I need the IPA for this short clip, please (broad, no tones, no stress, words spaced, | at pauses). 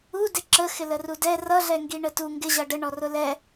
u dɪǁəxɪ lərudɛ rʌ ɮɛŋɡiɳətu ŋɡɪʑʌ ɖəɳɔrʊ lɛ